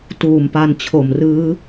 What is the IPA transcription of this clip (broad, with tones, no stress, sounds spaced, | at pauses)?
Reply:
t uː˨˩ m p a˧ n t͡ɕʰ o˨˩ m r ɯː˦˥